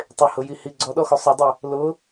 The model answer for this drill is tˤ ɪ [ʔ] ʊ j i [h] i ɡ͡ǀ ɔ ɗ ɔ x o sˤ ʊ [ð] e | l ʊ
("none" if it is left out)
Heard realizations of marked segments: h, h, dˤ

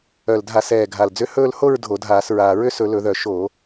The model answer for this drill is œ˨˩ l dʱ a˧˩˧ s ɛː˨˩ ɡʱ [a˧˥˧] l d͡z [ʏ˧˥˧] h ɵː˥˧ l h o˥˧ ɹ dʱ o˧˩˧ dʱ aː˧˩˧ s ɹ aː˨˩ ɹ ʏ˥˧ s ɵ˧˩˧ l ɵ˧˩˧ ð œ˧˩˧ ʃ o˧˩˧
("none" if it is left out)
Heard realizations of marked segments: a˨˩, ʏ˧˥˧

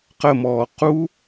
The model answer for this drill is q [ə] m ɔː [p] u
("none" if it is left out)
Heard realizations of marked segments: ə, q

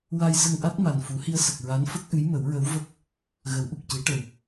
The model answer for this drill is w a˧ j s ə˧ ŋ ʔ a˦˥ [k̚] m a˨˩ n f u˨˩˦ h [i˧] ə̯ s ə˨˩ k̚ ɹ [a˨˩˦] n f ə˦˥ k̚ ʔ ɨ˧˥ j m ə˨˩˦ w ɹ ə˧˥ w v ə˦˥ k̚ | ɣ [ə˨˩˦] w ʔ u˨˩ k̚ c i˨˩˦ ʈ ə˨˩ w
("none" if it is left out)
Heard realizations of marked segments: t̚, i˧, a˧˥, ə˨˩˦

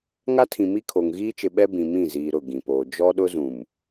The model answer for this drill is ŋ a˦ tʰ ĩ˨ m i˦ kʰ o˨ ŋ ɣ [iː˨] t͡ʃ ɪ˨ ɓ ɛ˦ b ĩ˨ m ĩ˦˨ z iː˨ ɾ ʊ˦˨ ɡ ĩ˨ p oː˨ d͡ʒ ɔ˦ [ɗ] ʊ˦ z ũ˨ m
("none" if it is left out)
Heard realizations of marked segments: iː˦, ɗ

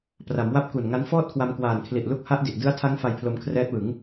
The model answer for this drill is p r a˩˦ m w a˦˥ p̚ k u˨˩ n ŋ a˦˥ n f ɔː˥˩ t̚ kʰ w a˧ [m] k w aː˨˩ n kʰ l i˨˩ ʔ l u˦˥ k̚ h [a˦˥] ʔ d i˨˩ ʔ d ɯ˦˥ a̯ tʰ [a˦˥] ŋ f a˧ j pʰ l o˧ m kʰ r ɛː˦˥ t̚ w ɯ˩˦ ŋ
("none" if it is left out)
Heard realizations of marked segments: m, a˦˥, a˦˥

